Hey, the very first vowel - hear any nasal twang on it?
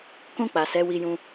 yes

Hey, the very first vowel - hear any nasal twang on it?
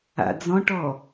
no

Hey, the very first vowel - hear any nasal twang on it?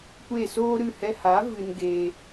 no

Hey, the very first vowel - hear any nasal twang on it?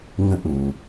yes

